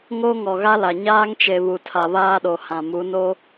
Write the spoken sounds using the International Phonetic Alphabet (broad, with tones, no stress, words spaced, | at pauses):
ŋo˦ŋɔ˨ɣa˦la˨ ɲaː˦ŋt͡ʃe˨ βu˨tʰa˨βaː˦ɗo˨ hã˨mu˨˦no˦